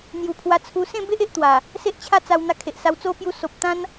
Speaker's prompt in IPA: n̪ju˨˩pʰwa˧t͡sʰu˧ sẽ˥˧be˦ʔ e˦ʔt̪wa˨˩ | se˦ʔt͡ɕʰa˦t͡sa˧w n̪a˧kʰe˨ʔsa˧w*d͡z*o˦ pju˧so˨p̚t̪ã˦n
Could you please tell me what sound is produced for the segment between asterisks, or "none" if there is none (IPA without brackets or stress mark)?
t͡s